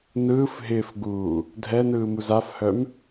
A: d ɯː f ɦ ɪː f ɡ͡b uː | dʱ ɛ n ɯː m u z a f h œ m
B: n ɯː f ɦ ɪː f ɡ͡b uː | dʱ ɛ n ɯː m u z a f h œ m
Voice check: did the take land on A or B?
B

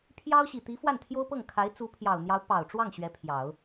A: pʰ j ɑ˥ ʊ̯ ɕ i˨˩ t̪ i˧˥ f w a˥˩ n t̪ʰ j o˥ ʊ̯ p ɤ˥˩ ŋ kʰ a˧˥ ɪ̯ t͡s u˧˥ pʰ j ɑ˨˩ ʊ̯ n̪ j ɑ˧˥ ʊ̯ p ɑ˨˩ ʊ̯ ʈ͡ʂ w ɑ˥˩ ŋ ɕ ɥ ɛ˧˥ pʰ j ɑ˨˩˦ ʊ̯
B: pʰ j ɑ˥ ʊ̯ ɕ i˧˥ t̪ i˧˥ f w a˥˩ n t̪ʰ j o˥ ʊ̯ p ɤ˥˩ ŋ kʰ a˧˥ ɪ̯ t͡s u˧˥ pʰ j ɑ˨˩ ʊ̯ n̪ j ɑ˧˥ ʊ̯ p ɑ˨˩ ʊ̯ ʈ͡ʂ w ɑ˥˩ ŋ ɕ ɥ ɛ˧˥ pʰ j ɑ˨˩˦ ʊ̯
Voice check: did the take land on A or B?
A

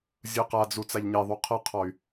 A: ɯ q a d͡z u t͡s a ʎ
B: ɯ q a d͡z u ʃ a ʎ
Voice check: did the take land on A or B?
A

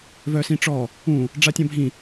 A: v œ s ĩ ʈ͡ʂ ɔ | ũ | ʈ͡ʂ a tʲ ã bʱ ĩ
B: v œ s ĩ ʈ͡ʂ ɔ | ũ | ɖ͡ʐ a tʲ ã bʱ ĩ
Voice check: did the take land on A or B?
B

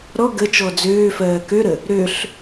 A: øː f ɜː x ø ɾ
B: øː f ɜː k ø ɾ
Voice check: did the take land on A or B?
B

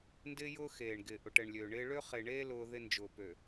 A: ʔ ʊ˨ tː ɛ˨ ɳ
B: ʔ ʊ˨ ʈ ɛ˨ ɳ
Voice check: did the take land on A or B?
B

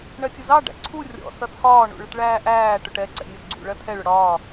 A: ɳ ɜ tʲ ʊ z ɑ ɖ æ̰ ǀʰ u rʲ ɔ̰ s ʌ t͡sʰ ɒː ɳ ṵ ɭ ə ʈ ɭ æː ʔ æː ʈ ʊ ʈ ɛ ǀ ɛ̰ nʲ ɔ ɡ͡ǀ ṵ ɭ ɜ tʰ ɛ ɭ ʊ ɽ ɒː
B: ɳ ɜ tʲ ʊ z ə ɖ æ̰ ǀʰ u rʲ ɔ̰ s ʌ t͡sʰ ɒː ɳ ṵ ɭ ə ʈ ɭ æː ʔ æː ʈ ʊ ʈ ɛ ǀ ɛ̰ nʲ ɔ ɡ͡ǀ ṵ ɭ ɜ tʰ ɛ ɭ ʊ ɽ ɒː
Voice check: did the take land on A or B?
A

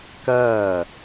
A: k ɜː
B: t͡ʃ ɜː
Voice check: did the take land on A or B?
A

